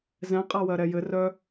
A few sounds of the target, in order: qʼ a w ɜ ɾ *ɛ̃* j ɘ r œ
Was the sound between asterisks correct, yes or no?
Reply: no